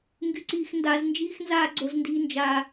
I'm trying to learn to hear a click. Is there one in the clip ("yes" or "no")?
yes